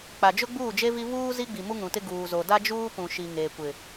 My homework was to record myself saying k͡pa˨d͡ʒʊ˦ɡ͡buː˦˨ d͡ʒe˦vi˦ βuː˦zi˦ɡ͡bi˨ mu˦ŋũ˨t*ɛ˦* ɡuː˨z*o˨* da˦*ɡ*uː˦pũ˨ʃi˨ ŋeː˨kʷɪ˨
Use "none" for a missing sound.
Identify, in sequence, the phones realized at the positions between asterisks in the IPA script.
ɪ˦, o˨, d͡ʒ

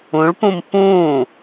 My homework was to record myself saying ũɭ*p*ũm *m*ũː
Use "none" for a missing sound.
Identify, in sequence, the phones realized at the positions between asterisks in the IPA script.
p, p

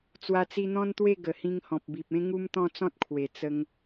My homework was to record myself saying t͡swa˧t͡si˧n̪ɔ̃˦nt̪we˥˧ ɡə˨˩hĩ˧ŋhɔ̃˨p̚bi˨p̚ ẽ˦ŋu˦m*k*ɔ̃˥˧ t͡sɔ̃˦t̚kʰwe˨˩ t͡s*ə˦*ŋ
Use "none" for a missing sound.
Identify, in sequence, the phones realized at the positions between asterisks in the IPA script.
t̪, ə˧

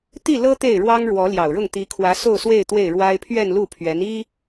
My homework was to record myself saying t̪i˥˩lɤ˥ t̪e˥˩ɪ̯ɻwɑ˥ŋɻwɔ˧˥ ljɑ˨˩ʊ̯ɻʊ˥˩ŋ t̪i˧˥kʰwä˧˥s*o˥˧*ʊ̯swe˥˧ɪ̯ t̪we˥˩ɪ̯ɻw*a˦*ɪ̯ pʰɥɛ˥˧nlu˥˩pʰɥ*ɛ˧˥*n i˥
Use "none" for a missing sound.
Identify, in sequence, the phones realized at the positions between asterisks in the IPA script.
o˥˧, a˥, ɛ˧˥

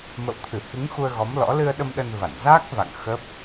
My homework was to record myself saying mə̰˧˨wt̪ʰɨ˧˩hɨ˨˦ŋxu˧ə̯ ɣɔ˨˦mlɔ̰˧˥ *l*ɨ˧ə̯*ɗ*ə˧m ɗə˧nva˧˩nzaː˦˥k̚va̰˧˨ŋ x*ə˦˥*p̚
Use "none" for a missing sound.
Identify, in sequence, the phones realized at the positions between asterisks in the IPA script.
l, ɗ, ə˦˥

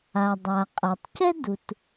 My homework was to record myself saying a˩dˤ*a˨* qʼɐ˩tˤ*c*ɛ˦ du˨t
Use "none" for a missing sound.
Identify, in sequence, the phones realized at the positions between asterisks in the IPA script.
a˩, c

